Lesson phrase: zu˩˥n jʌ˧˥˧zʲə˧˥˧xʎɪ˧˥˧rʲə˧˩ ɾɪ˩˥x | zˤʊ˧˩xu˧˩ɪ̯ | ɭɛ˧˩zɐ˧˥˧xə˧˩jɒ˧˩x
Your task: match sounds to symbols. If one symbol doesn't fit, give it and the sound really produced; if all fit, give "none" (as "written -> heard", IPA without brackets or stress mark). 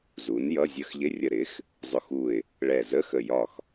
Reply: ɐ˧˥˧ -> ə˧˥˧